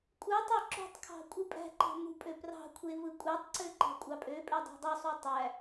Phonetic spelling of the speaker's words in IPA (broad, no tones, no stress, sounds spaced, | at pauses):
kʷʼ ɯ tˤ e ǁ ṳ tˤ kʰ ɑ̤ kʷʼ ɯ pʼ æ̤ ǃ ɑ̤ m ṳ pʼ ø p r ɑ̤ kʷʰ e v ɯ kʷʼ æ tˤ ǀ ø ǃ æ̤ kʷʼ ɑ pʼ ø pʼ e dˤ æ̤ dˤ u sˤ u tˤ æ